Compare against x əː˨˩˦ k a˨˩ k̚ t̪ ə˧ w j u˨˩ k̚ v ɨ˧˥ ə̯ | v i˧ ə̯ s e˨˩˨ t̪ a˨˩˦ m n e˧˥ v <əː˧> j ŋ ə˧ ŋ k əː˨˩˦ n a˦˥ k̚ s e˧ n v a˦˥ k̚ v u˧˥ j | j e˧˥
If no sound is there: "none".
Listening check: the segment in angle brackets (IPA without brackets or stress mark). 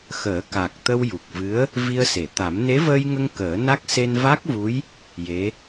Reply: əː˧